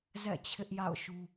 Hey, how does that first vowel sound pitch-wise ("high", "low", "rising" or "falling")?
falling